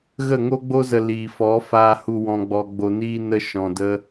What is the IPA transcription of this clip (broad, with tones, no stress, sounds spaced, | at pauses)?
ɣ ə˦˨ ŋ o˦ ɡ͡b o˦ z ə˧ l iː˨ f ɔ˨˦ f aː˧ h u˧ w ɔ̃˧ ɡ͡b ɔ˧ ɡ͡b o˧ n iː˦ n ə˦ ʃ ɔ̃˧ d ə˦